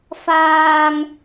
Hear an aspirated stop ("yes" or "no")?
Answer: no